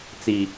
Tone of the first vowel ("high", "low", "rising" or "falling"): low